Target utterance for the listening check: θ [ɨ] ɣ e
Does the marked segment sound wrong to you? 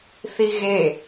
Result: yes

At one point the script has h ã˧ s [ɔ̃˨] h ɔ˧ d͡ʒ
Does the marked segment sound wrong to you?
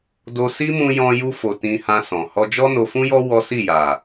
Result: no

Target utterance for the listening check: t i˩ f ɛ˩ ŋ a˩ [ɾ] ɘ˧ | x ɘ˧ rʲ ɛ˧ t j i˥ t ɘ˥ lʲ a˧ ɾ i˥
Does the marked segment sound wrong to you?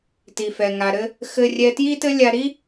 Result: no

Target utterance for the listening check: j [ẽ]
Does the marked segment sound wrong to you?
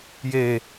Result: yes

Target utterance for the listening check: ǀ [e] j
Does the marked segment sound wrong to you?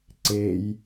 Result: no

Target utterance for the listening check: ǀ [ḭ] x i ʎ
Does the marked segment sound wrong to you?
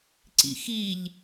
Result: no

